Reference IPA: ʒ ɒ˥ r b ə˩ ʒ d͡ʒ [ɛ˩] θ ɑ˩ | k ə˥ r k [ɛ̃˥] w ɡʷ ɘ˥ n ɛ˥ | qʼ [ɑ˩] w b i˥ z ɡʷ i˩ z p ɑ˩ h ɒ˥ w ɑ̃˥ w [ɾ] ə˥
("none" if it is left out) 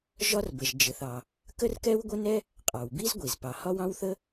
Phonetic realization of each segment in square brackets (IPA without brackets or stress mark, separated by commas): ɘ˩, ɛ˥, ɑ˩, θ